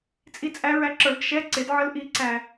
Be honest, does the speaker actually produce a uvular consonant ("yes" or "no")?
no